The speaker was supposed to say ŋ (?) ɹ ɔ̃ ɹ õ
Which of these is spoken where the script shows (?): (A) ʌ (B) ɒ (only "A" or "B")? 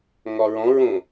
B